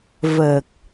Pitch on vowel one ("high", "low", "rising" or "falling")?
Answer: low